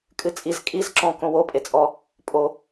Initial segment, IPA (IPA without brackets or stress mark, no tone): kʼ